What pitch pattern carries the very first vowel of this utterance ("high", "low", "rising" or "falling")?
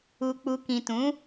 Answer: low